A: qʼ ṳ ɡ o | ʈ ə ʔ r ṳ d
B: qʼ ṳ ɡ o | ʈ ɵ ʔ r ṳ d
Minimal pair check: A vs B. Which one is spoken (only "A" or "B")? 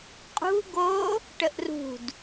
A